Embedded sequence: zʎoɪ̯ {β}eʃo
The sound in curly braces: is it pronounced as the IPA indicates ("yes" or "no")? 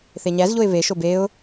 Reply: yes